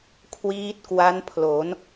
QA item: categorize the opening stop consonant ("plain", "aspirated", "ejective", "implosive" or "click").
aspirated